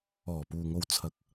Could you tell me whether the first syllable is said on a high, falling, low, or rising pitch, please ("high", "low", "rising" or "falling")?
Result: low